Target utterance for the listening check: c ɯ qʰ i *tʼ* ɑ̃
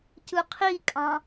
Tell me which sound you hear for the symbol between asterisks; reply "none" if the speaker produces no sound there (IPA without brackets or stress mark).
kʼ